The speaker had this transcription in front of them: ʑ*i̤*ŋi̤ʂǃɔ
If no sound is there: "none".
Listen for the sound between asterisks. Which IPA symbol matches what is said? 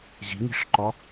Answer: i̤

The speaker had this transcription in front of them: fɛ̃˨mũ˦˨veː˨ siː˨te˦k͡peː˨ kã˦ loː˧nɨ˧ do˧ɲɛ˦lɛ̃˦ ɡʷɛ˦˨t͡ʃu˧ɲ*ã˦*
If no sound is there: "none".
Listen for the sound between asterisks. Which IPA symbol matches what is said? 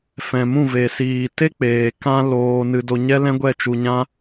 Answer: ã˦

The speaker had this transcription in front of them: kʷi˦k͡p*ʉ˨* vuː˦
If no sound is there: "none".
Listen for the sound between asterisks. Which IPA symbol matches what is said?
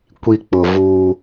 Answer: ʊ˨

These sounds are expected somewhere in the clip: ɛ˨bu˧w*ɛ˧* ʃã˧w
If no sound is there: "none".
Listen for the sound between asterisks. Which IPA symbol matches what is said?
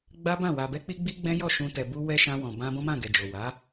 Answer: ɛ˧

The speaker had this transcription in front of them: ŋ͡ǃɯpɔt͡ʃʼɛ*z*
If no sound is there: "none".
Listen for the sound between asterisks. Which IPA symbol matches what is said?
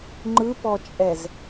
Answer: z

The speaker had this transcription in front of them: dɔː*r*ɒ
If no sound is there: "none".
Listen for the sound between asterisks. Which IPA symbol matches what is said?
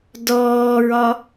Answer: ɹ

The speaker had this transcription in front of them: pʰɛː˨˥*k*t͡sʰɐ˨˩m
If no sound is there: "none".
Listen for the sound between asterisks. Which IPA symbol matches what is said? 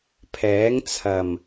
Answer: ŋ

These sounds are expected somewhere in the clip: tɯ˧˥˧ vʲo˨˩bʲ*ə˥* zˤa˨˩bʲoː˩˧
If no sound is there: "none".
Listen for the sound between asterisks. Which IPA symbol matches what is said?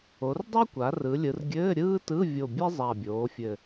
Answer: ɛ˥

